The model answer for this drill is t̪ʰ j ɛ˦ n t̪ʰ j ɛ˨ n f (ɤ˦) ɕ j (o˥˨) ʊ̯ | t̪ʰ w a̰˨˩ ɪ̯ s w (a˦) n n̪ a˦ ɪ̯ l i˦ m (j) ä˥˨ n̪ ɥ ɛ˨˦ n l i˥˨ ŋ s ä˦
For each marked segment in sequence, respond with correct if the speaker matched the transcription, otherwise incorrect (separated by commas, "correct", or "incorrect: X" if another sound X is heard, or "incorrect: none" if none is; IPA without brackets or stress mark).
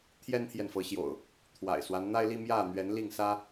incorrect: ɤ˨˦, incorrect: o̰˨˩, correct, correct